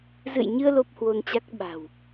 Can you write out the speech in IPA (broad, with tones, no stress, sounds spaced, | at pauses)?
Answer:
z ɨ̰˧˨ j ɲ ɨ˧ ə̯ l o˦˥ p̚ h w o˧ n t͡ɕ a˦˥ k̚ ɓ a̤˨˩ w